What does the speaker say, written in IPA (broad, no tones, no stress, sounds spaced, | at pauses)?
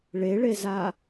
ɭ e ɭ e z a